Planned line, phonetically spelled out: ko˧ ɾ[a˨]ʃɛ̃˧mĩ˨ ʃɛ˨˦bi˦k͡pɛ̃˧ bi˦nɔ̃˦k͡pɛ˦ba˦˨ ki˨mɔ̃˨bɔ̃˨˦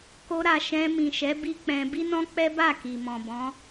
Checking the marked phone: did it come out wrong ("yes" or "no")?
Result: no